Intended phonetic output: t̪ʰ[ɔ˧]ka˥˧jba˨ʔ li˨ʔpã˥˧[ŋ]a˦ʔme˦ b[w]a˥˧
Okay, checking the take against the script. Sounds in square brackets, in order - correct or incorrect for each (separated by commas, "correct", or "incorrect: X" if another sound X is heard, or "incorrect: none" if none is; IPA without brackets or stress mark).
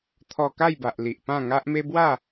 correct, correct, correct